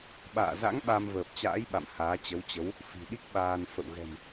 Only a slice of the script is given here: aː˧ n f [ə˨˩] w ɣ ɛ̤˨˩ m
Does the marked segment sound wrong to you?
yes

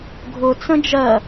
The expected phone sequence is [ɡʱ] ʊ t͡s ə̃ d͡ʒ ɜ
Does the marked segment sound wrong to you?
no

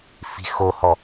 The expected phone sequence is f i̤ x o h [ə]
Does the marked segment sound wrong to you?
yes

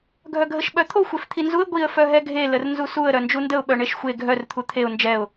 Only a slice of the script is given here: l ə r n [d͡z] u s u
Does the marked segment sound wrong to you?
yes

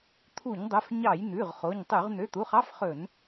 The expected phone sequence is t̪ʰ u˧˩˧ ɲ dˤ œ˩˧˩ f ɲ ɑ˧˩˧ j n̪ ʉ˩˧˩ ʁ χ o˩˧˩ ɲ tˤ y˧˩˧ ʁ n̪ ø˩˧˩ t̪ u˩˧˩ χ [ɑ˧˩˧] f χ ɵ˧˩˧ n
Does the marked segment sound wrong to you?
yes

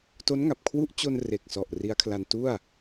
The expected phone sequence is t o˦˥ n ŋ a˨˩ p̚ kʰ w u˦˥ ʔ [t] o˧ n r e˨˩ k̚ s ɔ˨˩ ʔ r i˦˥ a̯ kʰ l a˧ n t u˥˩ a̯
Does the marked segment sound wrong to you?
yes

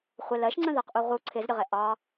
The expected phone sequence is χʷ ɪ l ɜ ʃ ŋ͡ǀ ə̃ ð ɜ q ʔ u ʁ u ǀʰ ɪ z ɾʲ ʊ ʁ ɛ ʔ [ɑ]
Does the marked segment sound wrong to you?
no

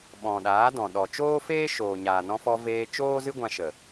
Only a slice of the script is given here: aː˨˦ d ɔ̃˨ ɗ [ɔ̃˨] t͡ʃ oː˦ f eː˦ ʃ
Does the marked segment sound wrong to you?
yes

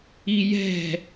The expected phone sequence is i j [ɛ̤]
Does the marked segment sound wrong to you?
no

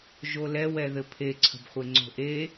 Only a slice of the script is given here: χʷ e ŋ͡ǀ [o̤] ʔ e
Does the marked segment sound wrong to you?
no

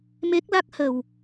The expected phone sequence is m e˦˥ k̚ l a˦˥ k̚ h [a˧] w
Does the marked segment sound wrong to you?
yes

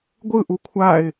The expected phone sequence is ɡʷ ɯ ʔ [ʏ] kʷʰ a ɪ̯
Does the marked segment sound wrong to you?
yes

